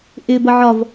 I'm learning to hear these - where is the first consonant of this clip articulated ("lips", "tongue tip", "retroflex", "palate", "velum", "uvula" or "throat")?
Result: throat